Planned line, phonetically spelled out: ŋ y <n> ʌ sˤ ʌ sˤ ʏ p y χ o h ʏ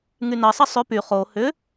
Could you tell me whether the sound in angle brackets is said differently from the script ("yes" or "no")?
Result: no